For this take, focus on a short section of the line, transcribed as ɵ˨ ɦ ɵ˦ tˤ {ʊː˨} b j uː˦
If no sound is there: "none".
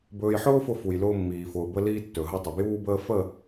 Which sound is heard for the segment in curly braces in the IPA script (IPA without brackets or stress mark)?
ʊ˨